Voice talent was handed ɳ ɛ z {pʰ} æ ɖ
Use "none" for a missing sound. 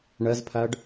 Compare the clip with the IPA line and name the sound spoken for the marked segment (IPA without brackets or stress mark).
pʰ